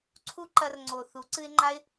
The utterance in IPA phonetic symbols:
ǀʰu˦ ǃɐ˧rŋ͡ǀo˨ θu˨˦ǀɨ˦ɪ̯ŋ͡ǃa˦ɪ̯

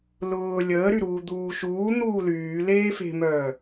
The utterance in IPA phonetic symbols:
lʊː lʲəːɾyɾuː d̪uːʃuː n̪uːlyː leːfe̤mœː

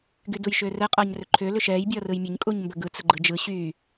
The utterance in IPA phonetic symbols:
ɡydujʃʏːrɛ qʼʌːɲrʏǃʰʏː lʏʃɛːj bʲʌːrɯjmʲəɲ kʼuɲmbəɡɯ t͡səɡ͡ǃɯd͡ʒɯ ɕyː

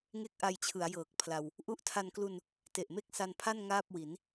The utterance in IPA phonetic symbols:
ŋe˥˩k̚ʔa˧jt͡ɕʰɯ˩˦a̯jɤː˨˩k̚ pʰla˧w | ʔu˦˥ʔtʰa˧n klu˧n | te˨˩ʔ me˥˩k̚ sa˧npʰa˥˩n ŋaː˥˩p̚wi˩˦n

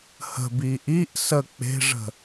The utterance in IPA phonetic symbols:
hə̤bi ʔiʔ sə k͡pe̤ʐə̤

